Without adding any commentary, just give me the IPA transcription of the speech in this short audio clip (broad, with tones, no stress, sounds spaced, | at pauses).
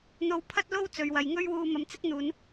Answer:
n̪ o˧ w pʰ ɐ˥ t̚ l o˥ w t͡s ɵ˨ ɥ w ɐ˨ j ŋ ɵ˥ ɥ w uː˧ m ɐ˨˧ m t͡s ɪ˥ k̚ n̪ uː˨˧ n